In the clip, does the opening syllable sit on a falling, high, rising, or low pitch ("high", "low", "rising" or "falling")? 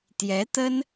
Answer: rising